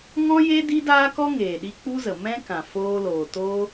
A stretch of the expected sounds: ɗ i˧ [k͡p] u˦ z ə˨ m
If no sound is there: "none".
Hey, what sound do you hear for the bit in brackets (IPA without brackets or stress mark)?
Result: k͡p